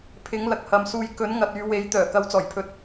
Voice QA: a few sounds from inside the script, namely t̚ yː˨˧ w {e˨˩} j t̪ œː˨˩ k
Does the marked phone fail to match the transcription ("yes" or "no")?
yes